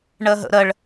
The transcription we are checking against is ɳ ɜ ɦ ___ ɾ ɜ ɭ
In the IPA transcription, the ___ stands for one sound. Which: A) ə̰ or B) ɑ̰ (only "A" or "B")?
A